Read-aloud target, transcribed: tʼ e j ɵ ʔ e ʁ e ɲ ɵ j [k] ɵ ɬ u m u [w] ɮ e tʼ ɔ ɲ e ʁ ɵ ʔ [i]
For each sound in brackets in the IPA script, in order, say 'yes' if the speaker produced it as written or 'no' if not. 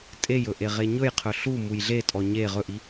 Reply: no, no, yes

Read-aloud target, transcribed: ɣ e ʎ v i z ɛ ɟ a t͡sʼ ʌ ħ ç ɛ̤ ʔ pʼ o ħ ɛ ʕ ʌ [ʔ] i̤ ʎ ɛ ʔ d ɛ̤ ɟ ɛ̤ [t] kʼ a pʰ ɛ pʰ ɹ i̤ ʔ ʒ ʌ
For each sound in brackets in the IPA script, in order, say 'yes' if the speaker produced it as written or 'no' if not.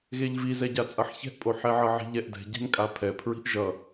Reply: no, no

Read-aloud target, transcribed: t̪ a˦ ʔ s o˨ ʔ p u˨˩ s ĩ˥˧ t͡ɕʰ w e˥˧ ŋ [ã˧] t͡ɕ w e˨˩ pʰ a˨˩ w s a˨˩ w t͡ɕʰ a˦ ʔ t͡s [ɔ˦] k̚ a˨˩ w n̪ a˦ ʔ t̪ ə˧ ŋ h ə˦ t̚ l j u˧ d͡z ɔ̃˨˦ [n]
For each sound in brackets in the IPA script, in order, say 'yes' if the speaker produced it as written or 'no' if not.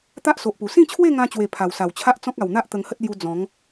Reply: yes, no, no

